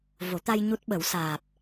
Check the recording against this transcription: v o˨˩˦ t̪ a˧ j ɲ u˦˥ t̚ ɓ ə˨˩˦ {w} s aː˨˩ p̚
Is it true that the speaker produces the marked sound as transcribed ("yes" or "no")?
yes